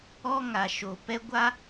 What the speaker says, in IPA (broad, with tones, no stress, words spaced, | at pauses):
ɔ˦ ŋa˨ʃo˨ pɛ˦ ɡʷa˦